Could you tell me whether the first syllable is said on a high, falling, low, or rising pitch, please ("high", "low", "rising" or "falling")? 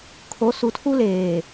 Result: rising